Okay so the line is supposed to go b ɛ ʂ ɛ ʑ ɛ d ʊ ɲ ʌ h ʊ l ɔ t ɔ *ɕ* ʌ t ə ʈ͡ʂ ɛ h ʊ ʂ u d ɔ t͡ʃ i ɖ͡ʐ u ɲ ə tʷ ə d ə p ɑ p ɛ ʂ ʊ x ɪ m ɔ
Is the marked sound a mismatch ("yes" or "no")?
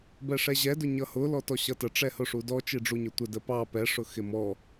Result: no